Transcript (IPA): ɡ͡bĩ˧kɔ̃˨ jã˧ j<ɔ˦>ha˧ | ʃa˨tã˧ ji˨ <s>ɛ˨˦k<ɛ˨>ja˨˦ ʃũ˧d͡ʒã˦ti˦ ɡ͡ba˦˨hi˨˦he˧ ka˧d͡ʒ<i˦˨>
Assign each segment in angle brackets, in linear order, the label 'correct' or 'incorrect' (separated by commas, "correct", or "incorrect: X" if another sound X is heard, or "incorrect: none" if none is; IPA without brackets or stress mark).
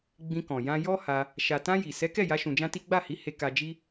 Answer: correct, correct, incorrect: ɛ˦˨, incorrect: i˦